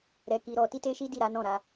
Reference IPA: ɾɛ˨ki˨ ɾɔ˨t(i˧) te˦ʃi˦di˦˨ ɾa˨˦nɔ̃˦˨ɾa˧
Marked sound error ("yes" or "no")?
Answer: no